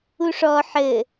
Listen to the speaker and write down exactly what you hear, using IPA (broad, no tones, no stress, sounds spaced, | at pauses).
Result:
u ʂ ɔ ħ ɘ